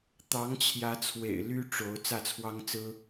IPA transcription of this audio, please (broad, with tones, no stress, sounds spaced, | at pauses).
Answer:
t̪ ɑ˧˥ ŋ t͡ɕʰ j ä˧˥ t͡sʰ w ḛ˨˩ ɪ̯ l y˥ ʈ͡ʂ o˧˥ ʊ̯ t͡s ä˥˩ t͡sʰ w ɑ˥ ŋ t͡s ɹ̩˥